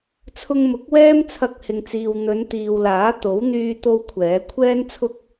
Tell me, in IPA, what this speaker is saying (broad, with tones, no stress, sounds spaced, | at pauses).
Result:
t͡sʰ ʊ˧ ŋ m ʊ˨˥ k̚ w ɛː˥ m t͡sʰ ɐ˧ k̚ h ɪ˨ ŋ t͡s iː˨ w n̪ ɵ˨˧ n t̪ iː˨ w l aː˨˥ t̪ o˨˥ w n̪ yː˥ t̪ o˥ w kʷʰ ɛː˨˥ kʷʰ ɛː˥ n t͡sʰ ʊ˥ k̚